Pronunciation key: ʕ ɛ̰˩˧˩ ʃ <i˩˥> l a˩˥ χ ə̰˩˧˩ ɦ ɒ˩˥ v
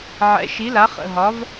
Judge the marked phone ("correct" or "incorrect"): correct